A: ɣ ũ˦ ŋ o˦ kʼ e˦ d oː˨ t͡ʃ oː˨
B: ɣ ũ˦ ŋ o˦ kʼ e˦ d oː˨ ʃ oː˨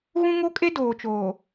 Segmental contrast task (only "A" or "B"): A